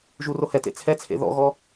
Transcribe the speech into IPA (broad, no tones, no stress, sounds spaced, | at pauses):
ʒ u r o h ɛ t ḛ t͡sʰ ɛ t͡sʰ ḛ ð ɔ̰ ɣ ɔ